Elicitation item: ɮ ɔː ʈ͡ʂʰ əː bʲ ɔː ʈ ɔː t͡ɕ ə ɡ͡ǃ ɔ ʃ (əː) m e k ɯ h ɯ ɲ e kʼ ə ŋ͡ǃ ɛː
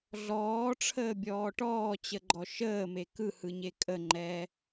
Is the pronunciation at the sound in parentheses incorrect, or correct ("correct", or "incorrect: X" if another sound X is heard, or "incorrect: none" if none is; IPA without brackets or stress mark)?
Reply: correct